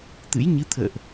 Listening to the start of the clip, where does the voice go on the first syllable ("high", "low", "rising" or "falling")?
rising